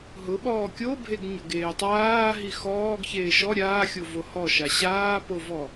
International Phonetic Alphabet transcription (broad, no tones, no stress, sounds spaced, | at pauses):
ɦ ʊ ɓ ɔː kʲ o bʱ e ɡ ɲ ʊ ɡ eː tˤ aː ɦ i x ɔː ɡ ç eː ʃ ɔ ɾʲ aː xʲ o v o h ɔ ʃ a ɕ aː p o v ɔ